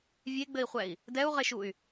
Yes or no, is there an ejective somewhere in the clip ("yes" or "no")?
no